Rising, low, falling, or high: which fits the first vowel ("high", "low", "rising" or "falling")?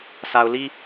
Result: low